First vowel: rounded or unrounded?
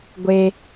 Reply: unrounded